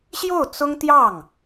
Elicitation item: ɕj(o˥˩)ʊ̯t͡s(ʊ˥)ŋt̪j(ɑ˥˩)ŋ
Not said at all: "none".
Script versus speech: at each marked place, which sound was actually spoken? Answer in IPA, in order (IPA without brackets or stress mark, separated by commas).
o˥˩, ʊ˥, ɑ˥˩